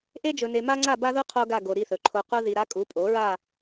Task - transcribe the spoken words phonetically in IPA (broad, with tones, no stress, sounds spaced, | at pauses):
ʔ e˥ d͡ʒ ɵ˧ n e˧ m a˥ ŋ͡ǀ a˥˧ b a˥ ð u˥ qʰ o˥ ɡ a˥˧ ɡ o˧ ɾ i˥˧ θ ɵ˩˥ ǃʰ o˧ q u˥ ð i˧ ɾ a˥ kʼ u˩˥ pʼ o˩˥ ɹ a˥˧